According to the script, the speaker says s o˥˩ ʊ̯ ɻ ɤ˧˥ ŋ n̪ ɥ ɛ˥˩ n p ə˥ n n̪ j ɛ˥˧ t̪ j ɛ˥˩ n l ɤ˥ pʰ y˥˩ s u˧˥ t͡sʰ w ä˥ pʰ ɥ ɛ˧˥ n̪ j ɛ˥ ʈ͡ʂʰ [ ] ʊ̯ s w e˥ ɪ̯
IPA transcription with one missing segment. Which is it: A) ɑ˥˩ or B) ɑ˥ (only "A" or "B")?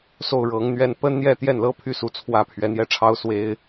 B